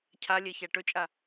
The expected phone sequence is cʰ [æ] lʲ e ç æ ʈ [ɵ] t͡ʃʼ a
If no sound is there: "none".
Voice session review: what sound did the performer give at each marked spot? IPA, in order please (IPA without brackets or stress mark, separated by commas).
a, ɵ